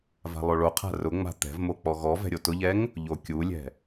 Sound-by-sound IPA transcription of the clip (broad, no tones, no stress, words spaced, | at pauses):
va̤lˠoɭoqʰa̤ rʊŋ͡ma̤ t̪ɛ̤vmo k͡pɔɣɔvɛ̤ ɾʲotʊʎɛŋ | ʎokʲulʲɛ̤